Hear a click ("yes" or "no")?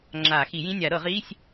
yes